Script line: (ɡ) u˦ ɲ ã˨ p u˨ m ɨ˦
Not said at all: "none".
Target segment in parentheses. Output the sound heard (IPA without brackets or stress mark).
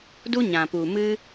d